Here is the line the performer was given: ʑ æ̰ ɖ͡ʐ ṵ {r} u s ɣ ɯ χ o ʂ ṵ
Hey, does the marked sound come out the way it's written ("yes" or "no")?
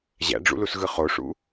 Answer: no